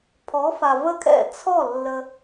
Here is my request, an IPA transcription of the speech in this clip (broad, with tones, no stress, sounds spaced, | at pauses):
pʰ ɔ˨˥ f a˨ v ə˥˩ kʰ ɛ̰˥˩ t͡sʰ ɔ˥˩ lː ə˨